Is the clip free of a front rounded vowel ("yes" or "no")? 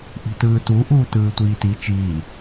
yes